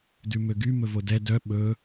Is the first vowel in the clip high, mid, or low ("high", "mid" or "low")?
high